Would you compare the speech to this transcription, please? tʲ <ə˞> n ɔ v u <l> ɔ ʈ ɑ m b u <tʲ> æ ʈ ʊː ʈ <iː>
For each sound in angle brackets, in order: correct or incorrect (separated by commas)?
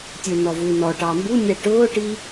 correct, incorrect, incorrect, correct